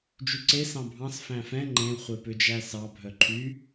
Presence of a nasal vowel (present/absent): present